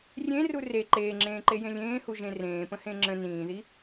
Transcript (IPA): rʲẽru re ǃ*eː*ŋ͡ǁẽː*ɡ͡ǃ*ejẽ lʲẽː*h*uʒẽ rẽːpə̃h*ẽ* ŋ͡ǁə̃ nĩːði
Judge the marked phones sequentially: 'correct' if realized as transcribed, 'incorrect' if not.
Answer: correct, incorrect, correct, correct

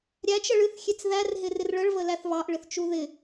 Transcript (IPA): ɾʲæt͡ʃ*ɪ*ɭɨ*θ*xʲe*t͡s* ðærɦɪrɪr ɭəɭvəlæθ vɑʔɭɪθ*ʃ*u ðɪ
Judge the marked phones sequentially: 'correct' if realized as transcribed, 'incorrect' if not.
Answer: incorrect, correct, correct, incorrect

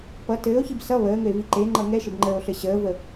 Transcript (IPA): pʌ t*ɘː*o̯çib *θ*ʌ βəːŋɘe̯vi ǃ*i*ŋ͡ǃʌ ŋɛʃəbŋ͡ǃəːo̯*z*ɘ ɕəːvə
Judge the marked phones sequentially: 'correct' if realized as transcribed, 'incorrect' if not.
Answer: correct, incorrect, incorrect, incorrect

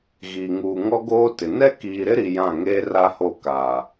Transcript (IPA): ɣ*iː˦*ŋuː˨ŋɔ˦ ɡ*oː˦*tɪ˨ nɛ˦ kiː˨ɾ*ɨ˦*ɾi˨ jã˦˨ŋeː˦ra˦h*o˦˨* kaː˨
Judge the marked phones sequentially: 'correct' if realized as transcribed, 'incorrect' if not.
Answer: incorrect, correct, incorrect, correct

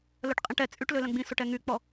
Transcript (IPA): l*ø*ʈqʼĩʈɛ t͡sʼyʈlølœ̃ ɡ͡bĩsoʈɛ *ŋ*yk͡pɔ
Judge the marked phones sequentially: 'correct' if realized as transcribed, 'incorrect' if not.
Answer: incorrect, correct

